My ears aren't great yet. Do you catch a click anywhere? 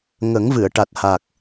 no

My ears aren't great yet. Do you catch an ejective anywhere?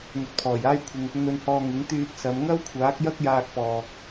no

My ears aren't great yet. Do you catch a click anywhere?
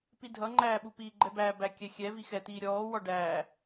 yes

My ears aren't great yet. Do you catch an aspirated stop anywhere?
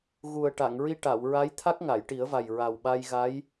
yes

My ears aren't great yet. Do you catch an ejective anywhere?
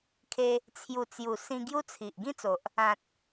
no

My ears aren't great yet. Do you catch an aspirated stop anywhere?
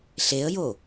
no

